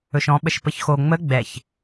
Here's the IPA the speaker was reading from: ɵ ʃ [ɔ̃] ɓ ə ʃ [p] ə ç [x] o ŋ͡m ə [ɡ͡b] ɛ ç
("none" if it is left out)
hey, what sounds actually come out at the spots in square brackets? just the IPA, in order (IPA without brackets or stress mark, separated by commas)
ɔ̃, p, x, ɡ͡b